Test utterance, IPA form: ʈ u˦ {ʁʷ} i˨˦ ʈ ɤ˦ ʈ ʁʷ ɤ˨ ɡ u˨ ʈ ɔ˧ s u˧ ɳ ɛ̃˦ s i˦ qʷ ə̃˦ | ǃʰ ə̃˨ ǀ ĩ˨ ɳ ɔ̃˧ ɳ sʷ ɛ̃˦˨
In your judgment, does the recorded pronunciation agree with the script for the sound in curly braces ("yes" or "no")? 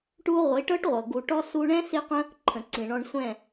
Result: yes